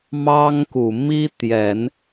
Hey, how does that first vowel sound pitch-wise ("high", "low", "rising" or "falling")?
high